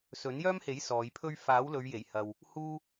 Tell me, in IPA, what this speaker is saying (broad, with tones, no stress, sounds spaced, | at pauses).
s ɵ˨˥ n j œː˥ m h e˨˥ j s ɔː˨˧ j pʰ ɵ˥ ɥ f aː˨˥ w l ɵ˨˧ ɥ j e˨˩ j h ɐ˨ w | h uː˥